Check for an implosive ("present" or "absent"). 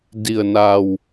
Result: absent